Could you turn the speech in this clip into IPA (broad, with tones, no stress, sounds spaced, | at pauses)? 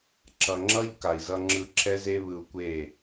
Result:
ǁ ʌ˨ ŋ͡ǁ ʌ˦ ʎ k a˨ i̯ z ʌ˧ ŋ͡ǁ ɯ˧ ǁʰ ɛ˦ z e˦ β ɯ˧ u̯ kʷ e˦˨